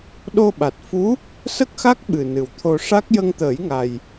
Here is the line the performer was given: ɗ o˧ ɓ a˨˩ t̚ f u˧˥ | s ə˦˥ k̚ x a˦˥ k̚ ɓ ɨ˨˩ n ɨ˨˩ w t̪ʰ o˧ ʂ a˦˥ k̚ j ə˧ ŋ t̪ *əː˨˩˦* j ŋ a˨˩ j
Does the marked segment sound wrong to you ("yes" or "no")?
no